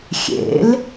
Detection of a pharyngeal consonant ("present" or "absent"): absent